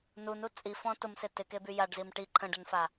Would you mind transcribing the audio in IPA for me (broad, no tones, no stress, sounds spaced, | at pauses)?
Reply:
n u n u t͡sʼ i f ɔ̃ t ʊ m s ɪ t ɪ k e b y j a ɖ z i m ʈ i ǃʰ ə̃ ɖ ə n f a